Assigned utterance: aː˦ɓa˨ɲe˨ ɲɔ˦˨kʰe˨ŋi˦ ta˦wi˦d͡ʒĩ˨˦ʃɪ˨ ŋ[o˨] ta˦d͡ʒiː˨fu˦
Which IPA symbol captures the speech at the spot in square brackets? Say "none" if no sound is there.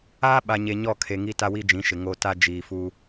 o˨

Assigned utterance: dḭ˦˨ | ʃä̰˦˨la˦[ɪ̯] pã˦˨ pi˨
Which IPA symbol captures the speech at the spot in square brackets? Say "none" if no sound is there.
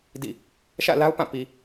ʊ̯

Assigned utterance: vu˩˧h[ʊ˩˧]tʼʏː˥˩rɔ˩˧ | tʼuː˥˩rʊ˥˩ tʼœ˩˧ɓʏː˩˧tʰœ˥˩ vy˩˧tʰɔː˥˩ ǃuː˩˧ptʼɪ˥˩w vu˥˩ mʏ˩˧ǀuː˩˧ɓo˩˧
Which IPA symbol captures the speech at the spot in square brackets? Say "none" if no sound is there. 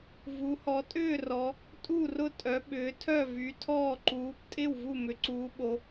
ɔ˩˧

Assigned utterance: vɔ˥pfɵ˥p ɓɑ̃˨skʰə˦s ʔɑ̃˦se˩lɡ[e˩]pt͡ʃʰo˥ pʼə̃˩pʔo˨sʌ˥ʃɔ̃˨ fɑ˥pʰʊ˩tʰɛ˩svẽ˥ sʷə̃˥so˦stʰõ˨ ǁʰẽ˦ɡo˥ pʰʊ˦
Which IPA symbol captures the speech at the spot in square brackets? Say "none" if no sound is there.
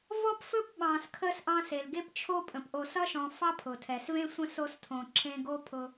e˥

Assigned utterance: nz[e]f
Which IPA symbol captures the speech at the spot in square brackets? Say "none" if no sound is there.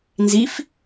i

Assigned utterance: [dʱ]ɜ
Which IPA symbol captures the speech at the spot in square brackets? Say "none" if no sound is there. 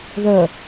ð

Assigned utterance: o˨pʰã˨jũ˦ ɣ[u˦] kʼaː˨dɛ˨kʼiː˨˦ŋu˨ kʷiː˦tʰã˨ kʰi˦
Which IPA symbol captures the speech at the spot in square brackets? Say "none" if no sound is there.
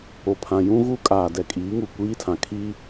u˦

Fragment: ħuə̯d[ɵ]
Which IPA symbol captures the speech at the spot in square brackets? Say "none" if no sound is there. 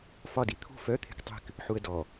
ɔ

